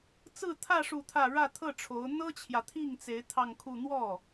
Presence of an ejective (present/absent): absent